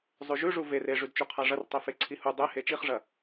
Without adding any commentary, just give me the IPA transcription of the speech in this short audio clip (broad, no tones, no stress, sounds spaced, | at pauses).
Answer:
zˤ ʉ ʒ ʉ ʐ u v e r e ʐ ʉ d t͡ʃ u qʰ a ʐ ɐ r tˤ e f e ǀʰ i h u dˤ e h e t͡ʃ i χ ʐ ɐ